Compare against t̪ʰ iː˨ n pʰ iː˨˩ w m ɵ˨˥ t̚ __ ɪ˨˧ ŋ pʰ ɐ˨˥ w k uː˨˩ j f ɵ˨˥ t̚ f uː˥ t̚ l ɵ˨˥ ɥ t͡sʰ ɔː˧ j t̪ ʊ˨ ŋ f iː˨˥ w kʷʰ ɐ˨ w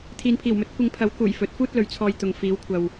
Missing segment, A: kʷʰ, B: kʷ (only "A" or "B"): B